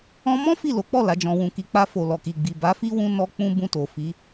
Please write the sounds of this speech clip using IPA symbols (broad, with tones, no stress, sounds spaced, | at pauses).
ɔ̃˧ m ɔ̃˦ f i˦˨ l o˨˦ k͡p ɔ˦˨ l a˨˦ d͡ʒ ɔ̃˧ w ũ˧ k i˨ k͡p a˧ f o˨ l ɔ˨ k i˨ ɡ͡b i˨ b a˨˦ f i˦ w ũ˧ n ɔ˧ k͡p ũ˦ b ũ˧ t o˨ f i˨˦